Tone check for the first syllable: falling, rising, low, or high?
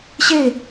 falling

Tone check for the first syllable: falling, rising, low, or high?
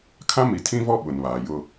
high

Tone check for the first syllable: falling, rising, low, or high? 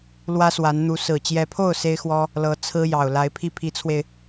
high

